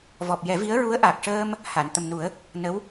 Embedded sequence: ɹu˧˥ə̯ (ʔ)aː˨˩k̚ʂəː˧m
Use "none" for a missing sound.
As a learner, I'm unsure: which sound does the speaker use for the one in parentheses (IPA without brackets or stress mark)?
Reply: ʔ